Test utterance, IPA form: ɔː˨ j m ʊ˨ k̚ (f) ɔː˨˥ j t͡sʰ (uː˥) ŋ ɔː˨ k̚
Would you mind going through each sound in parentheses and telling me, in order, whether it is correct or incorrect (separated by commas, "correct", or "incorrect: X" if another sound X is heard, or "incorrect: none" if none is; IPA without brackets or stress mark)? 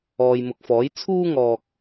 correct, correct